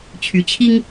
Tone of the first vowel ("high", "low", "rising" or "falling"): rising